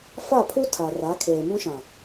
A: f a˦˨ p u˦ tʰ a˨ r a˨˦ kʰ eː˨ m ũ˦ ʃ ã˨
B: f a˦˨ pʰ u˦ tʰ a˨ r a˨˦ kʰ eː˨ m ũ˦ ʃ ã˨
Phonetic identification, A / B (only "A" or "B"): B